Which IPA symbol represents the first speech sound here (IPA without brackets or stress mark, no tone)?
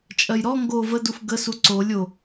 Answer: t͡ʃʼ